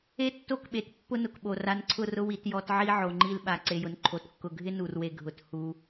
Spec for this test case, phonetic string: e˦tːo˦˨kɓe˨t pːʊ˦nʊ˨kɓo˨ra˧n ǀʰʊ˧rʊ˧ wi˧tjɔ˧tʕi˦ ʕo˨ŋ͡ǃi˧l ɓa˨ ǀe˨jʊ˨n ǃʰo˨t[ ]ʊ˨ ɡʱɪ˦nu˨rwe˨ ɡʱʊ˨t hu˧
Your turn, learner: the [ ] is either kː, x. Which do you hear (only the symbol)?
kː